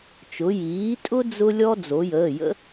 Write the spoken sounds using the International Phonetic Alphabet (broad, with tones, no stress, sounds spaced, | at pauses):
t͡ʃ ʊ˩˧ j iː˩˥ tʼ ʊ˥ d͡z ʊ˥ lʲ ɔ˥ d͡z o˩˧ j əː˩˧˩ j ə̰˥